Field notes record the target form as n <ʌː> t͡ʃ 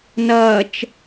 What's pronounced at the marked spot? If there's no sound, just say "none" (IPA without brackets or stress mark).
ʌː